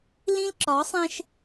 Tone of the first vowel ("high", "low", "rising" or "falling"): high